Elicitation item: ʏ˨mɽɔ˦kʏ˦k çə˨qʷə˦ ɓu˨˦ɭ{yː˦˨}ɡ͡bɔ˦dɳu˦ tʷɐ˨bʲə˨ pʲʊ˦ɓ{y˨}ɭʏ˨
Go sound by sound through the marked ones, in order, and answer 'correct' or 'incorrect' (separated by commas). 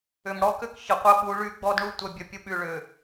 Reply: incorrect, correct